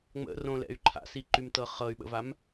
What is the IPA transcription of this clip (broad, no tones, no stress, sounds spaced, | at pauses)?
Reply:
ŋ͡m ə̰ r õ l ɛ̰ y̯ ǃʰ a̰ s i ǃ y m t ɤ χ ɤ y̯ ɓ ə̰ v a m